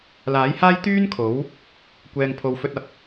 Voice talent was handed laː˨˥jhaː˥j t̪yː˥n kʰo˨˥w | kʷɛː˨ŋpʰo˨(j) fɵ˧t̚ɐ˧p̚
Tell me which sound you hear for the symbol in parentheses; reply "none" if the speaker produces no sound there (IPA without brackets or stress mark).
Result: w